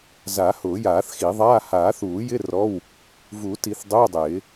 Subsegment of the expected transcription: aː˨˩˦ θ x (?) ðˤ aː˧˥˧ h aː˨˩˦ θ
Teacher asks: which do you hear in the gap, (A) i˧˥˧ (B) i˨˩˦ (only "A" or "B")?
B